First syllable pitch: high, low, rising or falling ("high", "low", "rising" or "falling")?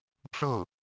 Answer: falling